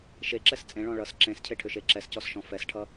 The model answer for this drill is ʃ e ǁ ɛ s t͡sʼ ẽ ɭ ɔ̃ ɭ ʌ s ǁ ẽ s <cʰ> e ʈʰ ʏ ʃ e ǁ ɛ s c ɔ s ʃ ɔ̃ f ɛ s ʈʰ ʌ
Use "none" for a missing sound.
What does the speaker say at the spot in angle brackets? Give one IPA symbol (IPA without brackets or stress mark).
cʰ